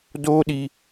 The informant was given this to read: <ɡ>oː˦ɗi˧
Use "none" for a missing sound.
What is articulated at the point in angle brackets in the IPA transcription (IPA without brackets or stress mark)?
d